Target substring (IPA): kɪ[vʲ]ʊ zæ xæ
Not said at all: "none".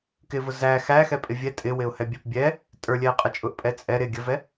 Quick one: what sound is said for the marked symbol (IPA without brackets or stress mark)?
v